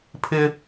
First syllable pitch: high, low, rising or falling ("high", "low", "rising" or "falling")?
high